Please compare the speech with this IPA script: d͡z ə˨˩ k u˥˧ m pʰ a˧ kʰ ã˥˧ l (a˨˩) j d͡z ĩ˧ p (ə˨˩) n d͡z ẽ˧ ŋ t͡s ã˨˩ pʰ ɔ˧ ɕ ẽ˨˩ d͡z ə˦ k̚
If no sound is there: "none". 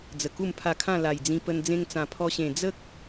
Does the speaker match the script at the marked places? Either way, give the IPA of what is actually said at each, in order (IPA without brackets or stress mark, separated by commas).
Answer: a˨˩, ə˧